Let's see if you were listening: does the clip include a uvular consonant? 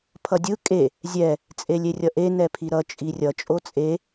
no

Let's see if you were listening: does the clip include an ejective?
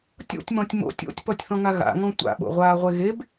no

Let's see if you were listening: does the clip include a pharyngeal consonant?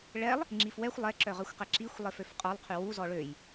no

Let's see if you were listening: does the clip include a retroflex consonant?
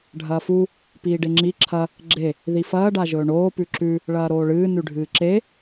yes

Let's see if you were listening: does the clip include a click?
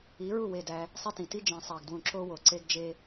yes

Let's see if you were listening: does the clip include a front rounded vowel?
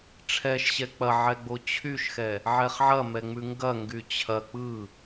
yes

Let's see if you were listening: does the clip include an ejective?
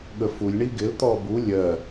no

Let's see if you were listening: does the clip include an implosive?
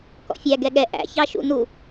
yes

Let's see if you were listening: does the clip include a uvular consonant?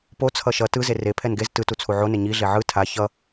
no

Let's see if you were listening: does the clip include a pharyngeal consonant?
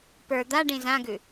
no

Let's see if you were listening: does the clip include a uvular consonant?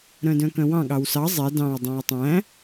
no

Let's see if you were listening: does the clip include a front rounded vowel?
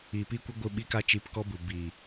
no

